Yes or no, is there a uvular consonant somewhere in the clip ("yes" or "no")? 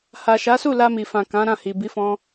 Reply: no